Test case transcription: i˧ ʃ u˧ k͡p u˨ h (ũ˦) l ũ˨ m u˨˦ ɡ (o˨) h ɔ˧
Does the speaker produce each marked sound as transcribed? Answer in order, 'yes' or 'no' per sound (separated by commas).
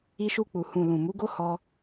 no, no